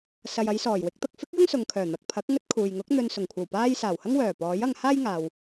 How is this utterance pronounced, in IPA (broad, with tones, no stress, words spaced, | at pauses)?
sɐ˨jɐ˨˧jsɔː˨˩j wɪ˧k̚t̪ɐ˨k̚fɪ˥k̚ jʊ˥ŋsʊ˨ŋkʰœː˨˩ n̪ɐ˨k̚pʰɐ˨˥k̚ ŋɵ˥t̚kʰuː˨j ŋʊ˨˥k̚ n̪ɵ˨nsʊ˨˩ŋkʷʰɐ˨˩wpaː˧j saː˨˩whɐ˥ŋ wœː˨˩ pɔː˨˥jɐ˧ŋ haː˥jŋaː˨w